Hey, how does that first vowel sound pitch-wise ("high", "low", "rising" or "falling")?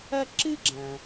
high